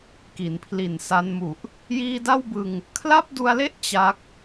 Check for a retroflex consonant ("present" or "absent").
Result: absent